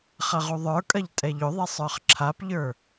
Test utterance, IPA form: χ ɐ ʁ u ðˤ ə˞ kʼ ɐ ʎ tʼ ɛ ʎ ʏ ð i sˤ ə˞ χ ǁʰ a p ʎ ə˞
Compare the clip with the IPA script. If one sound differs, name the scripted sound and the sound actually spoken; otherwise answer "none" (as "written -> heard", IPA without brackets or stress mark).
ð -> ðˤ